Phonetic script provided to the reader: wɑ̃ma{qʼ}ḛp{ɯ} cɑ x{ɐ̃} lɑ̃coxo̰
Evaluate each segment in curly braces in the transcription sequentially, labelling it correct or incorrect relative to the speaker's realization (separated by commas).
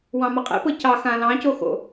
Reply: correct, incorrect, incorrect